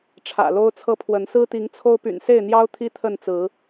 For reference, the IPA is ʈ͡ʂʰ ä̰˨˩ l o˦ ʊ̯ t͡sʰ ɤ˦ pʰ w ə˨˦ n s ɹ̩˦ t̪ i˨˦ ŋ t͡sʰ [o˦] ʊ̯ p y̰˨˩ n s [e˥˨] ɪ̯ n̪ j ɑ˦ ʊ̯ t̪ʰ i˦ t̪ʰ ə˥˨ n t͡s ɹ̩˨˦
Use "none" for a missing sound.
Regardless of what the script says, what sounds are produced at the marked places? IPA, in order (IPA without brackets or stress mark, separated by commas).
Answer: o˦, e˥˨